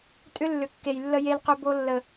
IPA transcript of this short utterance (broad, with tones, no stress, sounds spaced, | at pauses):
tʼ ʏ˦ lː ʏ˨ kː e˨ j lː ə˧ j e˧ l q ʏ˧ b o˧ lː ə˨